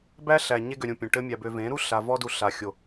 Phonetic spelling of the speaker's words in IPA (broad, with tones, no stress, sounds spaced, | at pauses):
b æ˦ ɬ æ˨ ɲ e˧ ɡ ø˨ ɾʲ ũ˨ pʲ ũ˨ ʈ ɘ˦ mʲ æ˧ b ø˧ v ẽ˨˦ ɾ u˦ ɬ a˧ v ɔ˦ d u˧ ɬ a˨ xʲ o˨